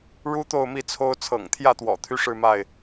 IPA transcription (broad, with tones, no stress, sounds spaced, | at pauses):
ɻ u˦ t̪ o˥˨ ʊ̯ m i˥˨ t͡sʰ o˦ ʊ̯ t͡sʰ ɤ̰˨˩ ŋ t̪ʰ j ä˥˨ t̪ w ɔ̰˨˩ t̪ʰ y˦ ʂ ɻ̩˥˨ m a˥˨ ɪ̯